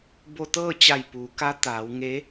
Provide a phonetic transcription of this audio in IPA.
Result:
b o˧ t̪ ɤː˥˨ t͡ɕ a˧˩ j p uː˩˧ k a˧˥ t̪ aː˩˧ w ŋ e˧˥

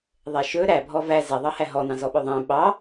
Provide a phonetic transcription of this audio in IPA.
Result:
ðˤ ɛ ʃ ɵ ɾ æ bʱ ɔ v æ z ɛ ðˤ ɑ h æ ɦ ɔ n ɑ̃ z ɔ ɓ ɵ ðˤ ɛ̃ ɓ ɑ

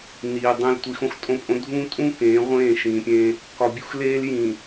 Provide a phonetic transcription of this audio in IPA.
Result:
n iː˨ dˤ ẽ˦ l tʷ i˨ x õ˦ x tʼ õ˦ pʼ õ˦ dʱ ũː˦ tʼ ũ˦ k ẽː˨˦ ʁʷ ẽː˦˨ ʃ ĩː˨ pʲ ẽ˦ | k ɒ˨ bʲ u˦ x l eː˦ l j ĩ˨

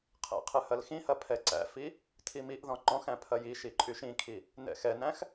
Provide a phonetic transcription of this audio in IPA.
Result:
qʰ ɛ̰ qʰ ɨ h ɐ l x ĩ h ɐ pʰ ɛ ǀ æ̰ f i | tʰ i m i ʔ ð ɔ̃ ŋ͡ǃ ɔ̃ x æ̃ pʰ ɐ j i ʃ i ǃʼ y ʃ ĩ kʰ i | n ɛ̰ x ɛ n æ̃ x

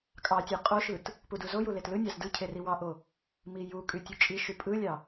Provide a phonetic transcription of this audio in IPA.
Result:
kʼ ɑ tʲ ɯ qʼ o ʃ ɯ t | p u d u z o j u l e t l ɯ nʲ ɑ z d ɯ cʰ e r i w ɑ ʔ o | m i j u kʼ y tʲ u t͡ʃʼ i ʃ y pʼ ɯ lʲ ɑ

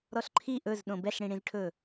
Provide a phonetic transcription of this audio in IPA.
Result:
ɾ ɔ ɬ ǃʰ i ʔ ɵ z ɗ õ b ɛ ɬ ɽ ĩ ɽ ĩ z ʈʰ ɵ

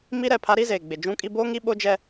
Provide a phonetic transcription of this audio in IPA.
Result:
m i˦ ɾ ɛ˦˨ pʰ a˦ ɾ i˦ z eː˨ ɡ͡b ɪ˨ d͡ʒ ũ˦ kʼ i˦ b oː˦ ŋ i˦ ɓ o˦ d͡ʒ ɛ˦

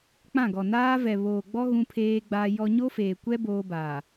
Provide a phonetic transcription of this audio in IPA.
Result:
k͡p ã˦˨ ɡ ɔ˨ n aː˦ v ɛ˨ β oː˨ ɡ͡b ɔ˦ ɣ ũ˦ pʰ eː˦ ɡ͡b aː˦ j ɔ˦ ɲ o˦ f eː˨ kʷ ɛ˦ b oː˦ b aː˨

